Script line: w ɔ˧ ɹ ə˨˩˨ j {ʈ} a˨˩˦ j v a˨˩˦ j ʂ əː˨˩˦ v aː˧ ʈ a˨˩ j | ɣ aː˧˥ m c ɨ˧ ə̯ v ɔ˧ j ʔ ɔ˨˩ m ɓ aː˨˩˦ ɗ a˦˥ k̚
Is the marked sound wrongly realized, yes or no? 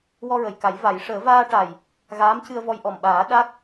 yes